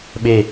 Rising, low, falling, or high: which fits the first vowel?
falling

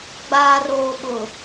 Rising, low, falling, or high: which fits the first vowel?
low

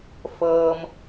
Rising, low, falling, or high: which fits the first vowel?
low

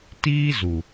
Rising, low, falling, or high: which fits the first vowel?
high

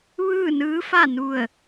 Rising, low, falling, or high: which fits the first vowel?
falling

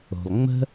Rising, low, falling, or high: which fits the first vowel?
low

